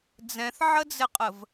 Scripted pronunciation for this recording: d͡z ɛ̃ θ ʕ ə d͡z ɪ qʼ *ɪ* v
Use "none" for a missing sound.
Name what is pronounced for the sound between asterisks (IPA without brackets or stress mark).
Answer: ə